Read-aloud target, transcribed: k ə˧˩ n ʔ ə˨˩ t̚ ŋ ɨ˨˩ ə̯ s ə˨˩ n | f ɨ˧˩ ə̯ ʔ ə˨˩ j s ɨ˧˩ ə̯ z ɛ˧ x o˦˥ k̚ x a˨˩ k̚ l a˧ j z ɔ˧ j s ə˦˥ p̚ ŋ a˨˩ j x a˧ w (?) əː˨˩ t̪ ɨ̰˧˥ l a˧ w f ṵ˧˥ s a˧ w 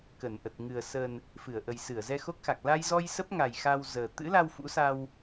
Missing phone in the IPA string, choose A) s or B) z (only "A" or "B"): B